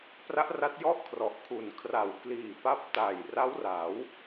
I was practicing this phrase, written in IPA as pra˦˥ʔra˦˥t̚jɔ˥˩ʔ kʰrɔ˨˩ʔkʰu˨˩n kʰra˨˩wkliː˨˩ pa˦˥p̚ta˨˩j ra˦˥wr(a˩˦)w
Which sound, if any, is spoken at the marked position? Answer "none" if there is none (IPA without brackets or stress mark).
a˩˦